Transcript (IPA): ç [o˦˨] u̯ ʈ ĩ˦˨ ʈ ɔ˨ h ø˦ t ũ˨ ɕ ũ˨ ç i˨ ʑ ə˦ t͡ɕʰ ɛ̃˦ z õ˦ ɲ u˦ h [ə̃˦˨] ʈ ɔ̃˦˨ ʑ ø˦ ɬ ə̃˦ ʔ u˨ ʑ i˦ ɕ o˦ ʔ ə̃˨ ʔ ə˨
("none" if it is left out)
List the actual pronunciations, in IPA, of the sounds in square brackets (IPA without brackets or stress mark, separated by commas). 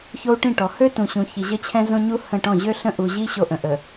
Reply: o˦, ə̃˦˨